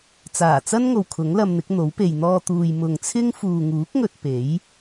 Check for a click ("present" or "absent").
absent